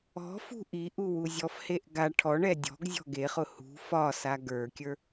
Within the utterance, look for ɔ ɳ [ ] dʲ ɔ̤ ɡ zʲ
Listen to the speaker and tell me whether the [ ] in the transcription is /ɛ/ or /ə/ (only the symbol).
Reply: ɛ